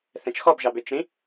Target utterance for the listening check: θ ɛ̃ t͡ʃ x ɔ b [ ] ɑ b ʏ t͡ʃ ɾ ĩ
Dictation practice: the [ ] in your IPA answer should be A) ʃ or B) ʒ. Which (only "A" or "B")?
B